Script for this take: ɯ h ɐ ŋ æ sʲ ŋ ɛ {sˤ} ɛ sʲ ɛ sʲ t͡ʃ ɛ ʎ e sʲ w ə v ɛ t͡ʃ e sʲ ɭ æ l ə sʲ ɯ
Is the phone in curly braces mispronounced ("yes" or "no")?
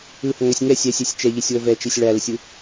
yes